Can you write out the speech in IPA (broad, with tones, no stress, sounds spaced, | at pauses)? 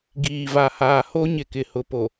ɡ iː˨ v a˨ h aː˨ h o˦ ɲ ɪ˨ k ɪ˨ h ʊ˨ p o˨